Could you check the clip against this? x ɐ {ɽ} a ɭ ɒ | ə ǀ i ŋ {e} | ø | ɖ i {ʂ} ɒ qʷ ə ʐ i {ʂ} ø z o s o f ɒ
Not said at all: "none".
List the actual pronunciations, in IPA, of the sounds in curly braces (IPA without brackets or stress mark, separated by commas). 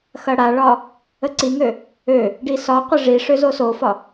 ɽ, ø, s, ʂ